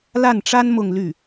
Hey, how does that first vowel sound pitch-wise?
falling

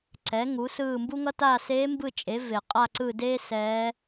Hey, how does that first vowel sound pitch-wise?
rising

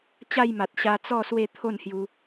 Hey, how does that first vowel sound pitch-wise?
falling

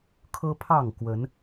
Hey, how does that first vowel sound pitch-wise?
high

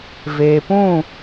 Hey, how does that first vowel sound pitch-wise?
low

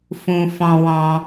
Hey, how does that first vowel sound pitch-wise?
high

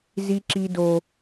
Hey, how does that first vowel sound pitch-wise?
high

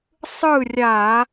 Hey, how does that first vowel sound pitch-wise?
falling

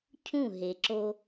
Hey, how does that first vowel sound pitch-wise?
falling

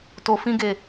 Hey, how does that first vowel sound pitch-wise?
low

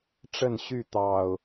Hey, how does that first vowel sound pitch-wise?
falling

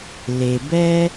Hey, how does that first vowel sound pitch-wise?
low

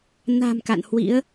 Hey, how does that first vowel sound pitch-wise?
low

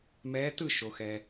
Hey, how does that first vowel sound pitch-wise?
rising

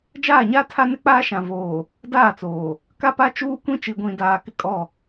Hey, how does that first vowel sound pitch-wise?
falling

